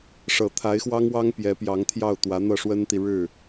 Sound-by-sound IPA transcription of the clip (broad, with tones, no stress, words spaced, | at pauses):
ʂɤ˨˩t̪ʰa˧˥ɪ̯xwɑ˥ŋwɑ˥ŋ pjɛ˧˥pjɑ˧˥ŋt̪ʰjɑ˥˩ʊ̯t̪wä˧˥ n̪ɤ˥˩ʂwə˥nt̪i˨ ɻɻ̩˥˩